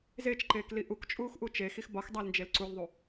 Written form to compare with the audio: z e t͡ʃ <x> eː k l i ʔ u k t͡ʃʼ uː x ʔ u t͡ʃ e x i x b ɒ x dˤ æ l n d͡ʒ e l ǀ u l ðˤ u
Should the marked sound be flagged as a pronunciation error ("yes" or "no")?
yes